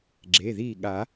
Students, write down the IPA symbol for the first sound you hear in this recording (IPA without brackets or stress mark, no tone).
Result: ɡ͡ǁ